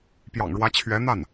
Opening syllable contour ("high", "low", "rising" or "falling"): low